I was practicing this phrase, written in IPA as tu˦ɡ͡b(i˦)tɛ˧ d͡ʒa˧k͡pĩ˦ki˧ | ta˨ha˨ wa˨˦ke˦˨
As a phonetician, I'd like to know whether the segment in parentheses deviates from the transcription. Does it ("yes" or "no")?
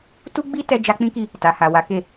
no